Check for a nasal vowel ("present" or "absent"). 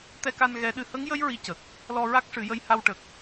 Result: absent